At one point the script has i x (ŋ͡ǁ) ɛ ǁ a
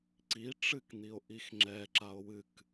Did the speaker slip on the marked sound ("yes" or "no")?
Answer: no